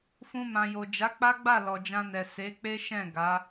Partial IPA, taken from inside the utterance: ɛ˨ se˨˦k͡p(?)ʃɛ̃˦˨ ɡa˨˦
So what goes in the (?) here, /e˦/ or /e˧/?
e˦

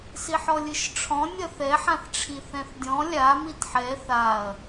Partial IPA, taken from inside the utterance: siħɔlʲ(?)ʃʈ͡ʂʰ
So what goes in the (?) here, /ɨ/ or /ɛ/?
ɨ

